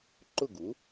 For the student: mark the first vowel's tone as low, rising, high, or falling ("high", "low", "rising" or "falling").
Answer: falling